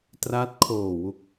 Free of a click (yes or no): yes